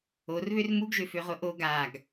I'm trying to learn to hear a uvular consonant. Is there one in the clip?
yes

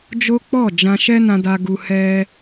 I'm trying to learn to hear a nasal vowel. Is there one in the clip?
yes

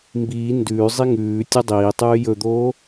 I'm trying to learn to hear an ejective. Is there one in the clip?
no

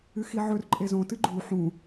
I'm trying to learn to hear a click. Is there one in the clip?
yes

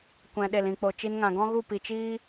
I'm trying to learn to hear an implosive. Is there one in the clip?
yes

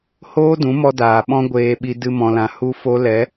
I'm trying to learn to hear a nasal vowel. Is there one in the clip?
yes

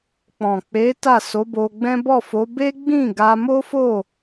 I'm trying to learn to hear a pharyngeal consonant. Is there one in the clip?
no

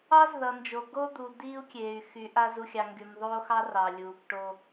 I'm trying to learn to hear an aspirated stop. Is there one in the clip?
no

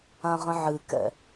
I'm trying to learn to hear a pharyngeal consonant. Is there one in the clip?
yes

